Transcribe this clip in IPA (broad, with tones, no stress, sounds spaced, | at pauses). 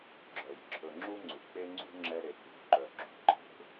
ɡ͡ǁ œ˩ j ǁʰ ɵ˨ ŋ͡ǁ u˥ ŋ͡ǀ ʉ˩ k͡p e˥ ŋ͡ǀ ṳ˥ ŋ͡ǁ ɛ˦ ɾ e˨ k͡p ṳ˨ ǃ œ˨ ɡ͡ǁ ṳ˩ ǃʰ e̤˦